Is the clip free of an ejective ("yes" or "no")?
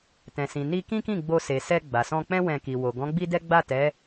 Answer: yes